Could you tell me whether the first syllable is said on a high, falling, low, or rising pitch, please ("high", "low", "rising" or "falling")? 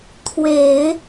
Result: low